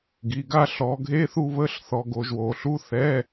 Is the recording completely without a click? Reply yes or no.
yes